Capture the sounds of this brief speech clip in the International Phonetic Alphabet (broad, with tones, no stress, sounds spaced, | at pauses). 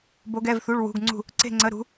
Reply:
b o˧˥ ɡ ɛ˧˥˧ v θ u˧˥˧ ɭ w ṳ˧˥˧ ɡ ŋ͡ǀ ṳ˥˧ | ǀ e̤˥˧ ŋ͡ǀ ə˧˥˧ ɾ ṳ˧˥